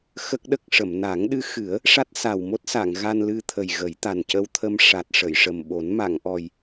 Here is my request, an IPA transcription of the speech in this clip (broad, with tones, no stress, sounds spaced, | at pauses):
x ə˦˥ k̚ ɗ ə˦˥ k̚ ʂ ə˨˩˨ m n a˨˩˦ ŋ ɗ ɨ˧˥ x ɨ˨˩˦ ə̯ | ʂ a˦˥ t̚ s a˨˩ w m o˦˥ t̚ s a˨˩˨ ŋ ɣ a˧ n l ɨ˧ t̪ʰ ə˨˩ j ɣ ə˨˩˦ j t̪ a˨˩ n c ə˧ w t̪ʰ ə˧ m ʂ a˨˩ t̚ ʂ ə˨˩˨ j ʂ ə˨˩ m ɓ o˨˩˦ n m a˨˩˨ ŋ ʔ ɔ˨˩ j